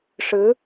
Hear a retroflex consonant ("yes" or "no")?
yes